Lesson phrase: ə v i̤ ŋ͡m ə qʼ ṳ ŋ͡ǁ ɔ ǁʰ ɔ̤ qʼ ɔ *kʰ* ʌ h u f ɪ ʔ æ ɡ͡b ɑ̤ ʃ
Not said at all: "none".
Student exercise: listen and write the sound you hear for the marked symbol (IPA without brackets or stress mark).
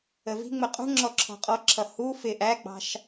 ǁʰ